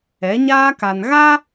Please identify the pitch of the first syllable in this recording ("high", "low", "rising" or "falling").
rising